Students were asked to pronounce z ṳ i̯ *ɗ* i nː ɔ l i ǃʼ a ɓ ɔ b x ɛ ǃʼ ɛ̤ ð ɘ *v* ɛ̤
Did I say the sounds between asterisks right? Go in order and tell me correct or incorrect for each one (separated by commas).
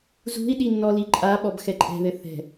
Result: correct, incorrect